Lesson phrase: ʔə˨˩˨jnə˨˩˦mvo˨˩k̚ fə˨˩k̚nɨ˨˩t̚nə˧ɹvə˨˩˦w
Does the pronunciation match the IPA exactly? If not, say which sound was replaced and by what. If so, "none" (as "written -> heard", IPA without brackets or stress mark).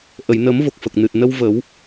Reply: ɹ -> w